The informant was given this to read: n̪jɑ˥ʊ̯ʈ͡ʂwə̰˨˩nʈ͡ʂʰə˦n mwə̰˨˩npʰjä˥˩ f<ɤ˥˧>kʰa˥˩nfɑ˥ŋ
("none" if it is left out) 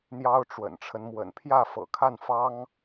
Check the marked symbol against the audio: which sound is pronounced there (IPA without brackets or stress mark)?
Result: ɤ̰˨˩